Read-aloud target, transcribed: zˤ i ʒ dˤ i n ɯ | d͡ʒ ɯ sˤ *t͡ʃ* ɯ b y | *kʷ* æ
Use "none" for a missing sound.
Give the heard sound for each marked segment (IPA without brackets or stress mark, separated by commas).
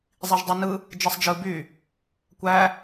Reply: d͡ʒ, kʷ